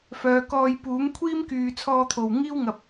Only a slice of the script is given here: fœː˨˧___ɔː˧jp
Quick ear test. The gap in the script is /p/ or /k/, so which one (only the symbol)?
k